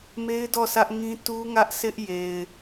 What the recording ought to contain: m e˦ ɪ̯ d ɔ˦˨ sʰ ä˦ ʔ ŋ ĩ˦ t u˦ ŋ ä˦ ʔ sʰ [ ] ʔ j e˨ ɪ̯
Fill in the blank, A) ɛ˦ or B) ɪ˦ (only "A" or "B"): B